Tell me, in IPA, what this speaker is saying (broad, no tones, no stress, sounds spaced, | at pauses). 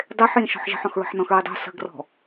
dˤ e ħ j ĩ ʃ ɔ̤ ħ ʒ ə̤ ħ ɔ̃ x ɹ ə̤ ħ n ɔ̃ x ɹ i dˤ o̤ s ə̤ ɡ r ɔ̤